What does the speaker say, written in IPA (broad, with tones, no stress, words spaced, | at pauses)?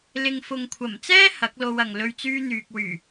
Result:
lɪ˨ŋfʊ˨ŋkʷʰɐ˨˩mt͡sɛː˥ hɐ˨˥k̚lo˧wɐ˨ŋ lɵ˧ɥt͡syː˥n̪yː˨k̚ wyː˨˩